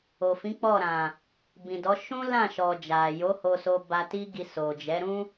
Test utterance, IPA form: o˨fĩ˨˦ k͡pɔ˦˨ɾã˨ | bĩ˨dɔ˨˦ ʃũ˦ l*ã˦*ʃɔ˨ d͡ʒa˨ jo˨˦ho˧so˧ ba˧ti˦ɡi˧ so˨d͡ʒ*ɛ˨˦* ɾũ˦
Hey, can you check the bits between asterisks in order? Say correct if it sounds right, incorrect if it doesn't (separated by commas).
incorrect, correct